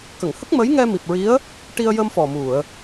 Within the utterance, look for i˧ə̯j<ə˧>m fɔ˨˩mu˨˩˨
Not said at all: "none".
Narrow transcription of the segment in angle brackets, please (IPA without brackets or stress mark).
ə˧